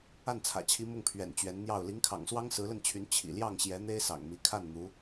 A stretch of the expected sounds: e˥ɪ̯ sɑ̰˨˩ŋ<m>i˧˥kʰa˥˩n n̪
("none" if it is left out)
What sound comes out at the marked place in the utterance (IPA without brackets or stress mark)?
m